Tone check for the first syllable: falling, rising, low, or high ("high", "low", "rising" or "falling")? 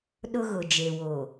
high